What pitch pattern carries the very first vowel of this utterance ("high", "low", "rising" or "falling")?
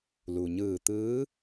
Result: low